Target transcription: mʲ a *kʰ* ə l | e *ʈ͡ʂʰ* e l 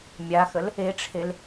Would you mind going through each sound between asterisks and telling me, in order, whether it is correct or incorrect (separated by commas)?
incorrect, correct